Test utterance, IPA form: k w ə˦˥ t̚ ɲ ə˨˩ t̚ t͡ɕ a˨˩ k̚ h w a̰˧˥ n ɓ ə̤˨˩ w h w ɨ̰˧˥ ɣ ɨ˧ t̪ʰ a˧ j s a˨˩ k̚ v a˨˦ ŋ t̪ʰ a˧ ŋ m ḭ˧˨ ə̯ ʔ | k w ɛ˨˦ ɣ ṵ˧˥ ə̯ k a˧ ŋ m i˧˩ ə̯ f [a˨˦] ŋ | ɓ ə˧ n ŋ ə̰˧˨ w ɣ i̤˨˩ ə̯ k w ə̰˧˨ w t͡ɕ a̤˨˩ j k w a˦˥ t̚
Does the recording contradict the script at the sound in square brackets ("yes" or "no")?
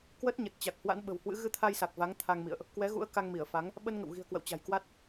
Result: no